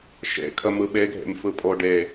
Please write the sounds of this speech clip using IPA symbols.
ʃ ḛ kʰ ə m ɯ ɓ e ɡʱ ḛ m f ɯ pʼ o ɖ e

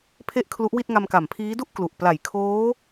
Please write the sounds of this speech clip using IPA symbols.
pʰ e˥˩ ʔ kʰ l u˦˥ ʔ w i˥˩ t̚ ŋ a˧ m k a˨˩ m pʰ iː˦˥ d u˥˩ ʔ k l u˨˩ ʔ p l a˨˩ j kʰ oː˦˥

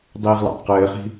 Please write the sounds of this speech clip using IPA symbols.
dˤ iː ʁ l a̰ tˤ q ɘː χ i̤

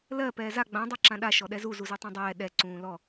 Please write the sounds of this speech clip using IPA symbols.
l ɜ p ɛː z a ɡ͡b ã dˤ a ǁ ã ɗ a ʃ ɔ ɗ ɛ z u z u z u tˤ ã dˤ ɛː ɗ ɛ ǀ ũː l ɔ

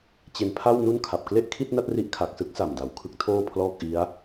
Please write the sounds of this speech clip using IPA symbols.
t͡ɕ e˧ n pʰ a˥˩ w n u˥˩ n kʰ a˨˩ p̚ k l e˥˩ ʔ kʰ i˥˩ t̚ n a˥˩ t̚ r i˦˥ ʔ kʰ a˨˩ k̚ s ɯ˥˩ k̚ s a˨˩ m d a˩˦ w kʰ ɯ˦˥ k̚ tʰ oː˥˩ pʰ l ɔː˥˩ k̚ ʔ i˦˥ a̯

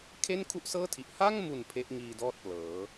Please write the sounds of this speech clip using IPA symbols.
kʰ e˥˩ n kʰ u˥˩ ʔ s ɤː˥˩ tʰ i˨˩ ʔ h a˥˩ ŋ m u˨˩ n pʰ e˦˥ ʔ ŋ iː˧ d ɔː˥˩ t̚ p l ɤː˩˦

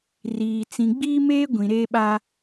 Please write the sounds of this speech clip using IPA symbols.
r iː˨ t͡s ĩ˨ ɡ͡b iː˦ m eː˦ ɡʷ ĩ˨ ɾ eː˦ ɓ a˦

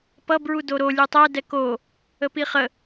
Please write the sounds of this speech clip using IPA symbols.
p ʌ b ɹ u d o ɾ o lʲ u tˤ ɛ d ɛ k o | ə p i χ ə

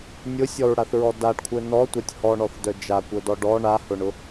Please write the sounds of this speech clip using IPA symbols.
nʲ ʊ sʲ ɔ ɹ ɽ a θ ɹ ɔ d a ɖ kʷʰ œ n ɔ tʷ a tʲ h ɔ ɳ ɔ θ d œ d͡ʒ a kʷ œ d ɔ ɖ ɔ ɳ a h ʊ ɳ ʊ

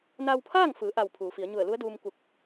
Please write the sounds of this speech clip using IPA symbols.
n a˧ w pʰ aː˥˨ ŋ f ɯː˩˧ ʔ a˧˩ w pʰ uː˩˧ f i˩˧ ə̯ ɲ u˧˩ ə̯ l u˧˥ ə̯ d uː˧ m k u˧˩ k̚

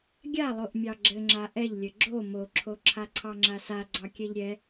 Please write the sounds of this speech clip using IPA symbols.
ɡʲ a lˠ o ʔ mʲ ɑ ɡ͡ǁ ɘ ŋ͡ǁ a ʔ ɛ ʎ lʲ ɘ ɡ͡ǁ o m o ǁʰ o ǁʰ a ǀʰ ɑ ŋ͡ǁ a s a ɡ͡ǀ ɑ kʲ ɛ ʎ ɾʲ ɛ

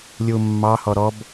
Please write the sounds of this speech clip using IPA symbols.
lʲ u mː ɑ h ɔ ɾ ɔ b

